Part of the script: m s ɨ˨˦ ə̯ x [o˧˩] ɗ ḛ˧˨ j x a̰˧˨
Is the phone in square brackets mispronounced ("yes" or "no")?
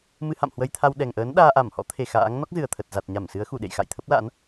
yes